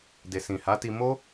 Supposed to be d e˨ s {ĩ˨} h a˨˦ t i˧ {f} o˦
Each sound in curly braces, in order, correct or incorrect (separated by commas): correct, incorrect